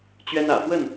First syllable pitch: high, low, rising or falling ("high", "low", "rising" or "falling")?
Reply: high